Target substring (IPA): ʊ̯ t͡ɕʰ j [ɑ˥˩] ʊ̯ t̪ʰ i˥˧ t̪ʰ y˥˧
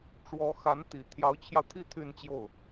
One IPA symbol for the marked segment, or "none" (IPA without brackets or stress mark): ɑ˧